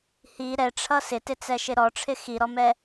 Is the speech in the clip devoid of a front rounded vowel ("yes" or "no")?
yes